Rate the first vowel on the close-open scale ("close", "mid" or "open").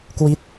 close